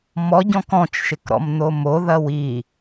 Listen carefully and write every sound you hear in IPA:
m ɔ ɟ ɔ̃ k ɔ̃ t͡ʃ ʃ ɪ k ɾ ɔ̰ m n̪ o m o ð ɐ w i

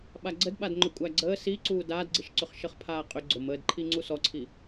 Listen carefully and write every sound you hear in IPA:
ɓ a ɡ͡ǀ ə d ɓ a d ŋ͡ǃ ʏ kʷʼ æ ɡ͡ǀ əː s i ǀ uː d aː d ɡ͡ǀ i ʃ ǀ ʏ χ ʃ ə χ pʰ aː qʼ ʏ ɡ͡ǀ ʊ m əː d ǃʰ i ŋ͡ǀ u s ɔ ǀʰ i

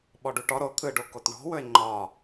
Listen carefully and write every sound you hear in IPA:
ɓ ɔ ɖ u ʈ ɔ ɾ o t̪ʰ ɯ ɖ o k o t ɳ ɔ̤ w ɵ e̯ ŋ͡ǃ ɒ

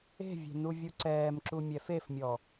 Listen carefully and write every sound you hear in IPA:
e̤ vʲ e̤ n u vʲ u ǀ ɛː m ǁ u mʲ ɛ f e f mʲ ɔ

